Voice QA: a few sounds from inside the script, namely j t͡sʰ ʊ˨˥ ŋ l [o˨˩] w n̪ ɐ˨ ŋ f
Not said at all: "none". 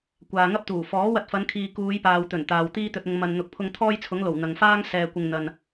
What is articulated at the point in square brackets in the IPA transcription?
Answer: o˨˩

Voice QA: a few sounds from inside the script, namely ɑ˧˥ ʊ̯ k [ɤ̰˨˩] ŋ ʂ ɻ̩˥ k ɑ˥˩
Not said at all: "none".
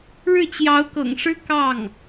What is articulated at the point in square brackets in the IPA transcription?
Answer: ɤ̰˨˩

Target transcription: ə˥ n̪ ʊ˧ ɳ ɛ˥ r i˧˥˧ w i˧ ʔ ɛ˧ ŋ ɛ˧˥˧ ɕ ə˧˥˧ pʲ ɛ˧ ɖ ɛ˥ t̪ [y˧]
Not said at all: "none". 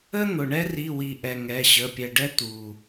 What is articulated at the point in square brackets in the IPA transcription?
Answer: u˧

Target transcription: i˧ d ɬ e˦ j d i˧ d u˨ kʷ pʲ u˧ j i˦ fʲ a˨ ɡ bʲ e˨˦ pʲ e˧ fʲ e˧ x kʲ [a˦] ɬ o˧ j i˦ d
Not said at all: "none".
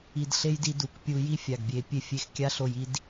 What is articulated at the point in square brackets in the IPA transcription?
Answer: a˦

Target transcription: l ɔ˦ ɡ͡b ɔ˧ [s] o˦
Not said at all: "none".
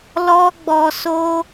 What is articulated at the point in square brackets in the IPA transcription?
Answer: s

